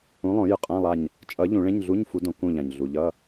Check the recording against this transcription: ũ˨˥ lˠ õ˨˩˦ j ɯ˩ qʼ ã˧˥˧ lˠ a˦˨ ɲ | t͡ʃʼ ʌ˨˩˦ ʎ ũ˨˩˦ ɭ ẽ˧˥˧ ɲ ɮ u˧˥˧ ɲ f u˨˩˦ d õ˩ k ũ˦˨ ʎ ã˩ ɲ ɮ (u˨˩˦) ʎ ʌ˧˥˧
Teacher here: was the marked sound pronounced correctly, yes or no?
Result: no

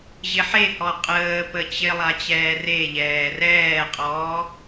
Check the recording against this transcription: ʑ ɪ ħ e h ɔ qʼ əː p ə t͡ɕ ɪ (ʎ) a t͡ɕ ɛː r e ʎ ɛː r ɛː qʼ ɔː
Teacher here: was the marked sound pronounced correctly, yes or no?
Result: no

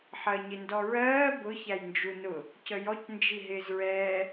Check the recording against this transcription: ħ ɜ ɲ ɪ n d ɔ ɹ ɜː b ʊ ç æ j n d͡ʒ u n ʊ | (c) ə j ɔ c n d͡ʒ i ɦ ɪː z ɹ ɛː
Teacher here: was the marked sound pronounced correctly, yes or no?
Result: yes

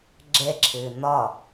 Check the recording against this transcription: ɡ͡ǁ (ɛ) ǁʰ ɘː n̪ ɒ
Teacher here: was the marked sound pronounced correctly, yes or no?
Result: yes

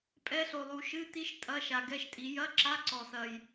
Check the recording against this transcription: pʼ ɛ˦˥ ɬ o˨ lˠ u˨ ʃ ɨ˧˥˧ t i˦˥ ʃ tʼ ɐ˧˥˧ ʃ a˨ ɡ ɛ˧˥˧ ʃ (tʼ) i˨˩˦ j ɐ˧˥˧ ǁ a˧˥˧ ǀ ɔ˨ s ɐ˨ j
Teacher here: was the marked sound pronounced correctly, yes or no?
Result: yes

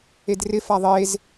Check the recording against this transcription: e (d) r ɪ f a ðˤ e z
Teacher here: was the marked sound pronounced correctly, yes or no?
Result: yes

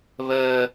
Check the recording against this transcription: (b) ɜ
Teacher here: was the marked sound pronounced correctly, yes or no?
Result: no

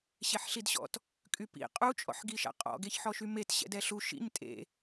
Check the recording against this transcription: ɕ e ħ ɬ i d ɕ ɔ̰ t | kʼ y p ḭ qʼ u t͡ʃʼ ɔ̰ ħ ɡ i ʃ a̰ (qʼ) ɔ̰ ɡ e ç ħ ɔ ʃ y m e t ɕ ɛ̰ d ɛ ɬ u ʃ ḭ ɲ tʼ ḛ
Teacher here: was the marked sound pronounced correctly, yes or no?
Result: yes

